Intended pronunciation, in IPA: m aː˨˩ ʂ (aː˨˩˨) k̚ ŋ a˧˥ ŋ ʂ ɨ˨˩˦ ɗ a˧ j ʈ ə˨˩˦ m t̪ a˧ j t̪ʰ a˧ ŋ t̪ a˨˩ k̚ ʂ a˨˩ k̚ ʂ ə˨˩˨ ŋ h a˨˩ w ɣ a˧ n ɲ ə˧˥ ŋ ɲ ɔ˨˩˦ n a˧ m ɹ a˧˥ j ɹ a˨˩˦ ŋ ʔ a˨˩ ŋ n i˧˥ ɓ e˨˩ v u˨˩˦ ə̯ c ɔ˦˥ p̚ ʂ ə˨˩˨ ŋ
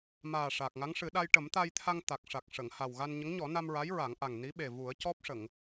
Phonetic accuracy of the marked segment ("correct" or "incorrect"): incorrect